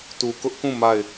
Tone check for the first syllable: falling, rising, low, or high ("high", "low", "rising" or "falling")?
low